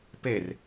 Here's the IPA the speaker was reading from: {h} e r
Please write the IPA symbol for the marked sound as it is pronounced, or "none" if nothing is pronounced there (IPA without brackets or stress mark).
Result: p